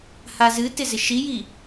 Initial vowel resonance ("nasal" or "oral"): oral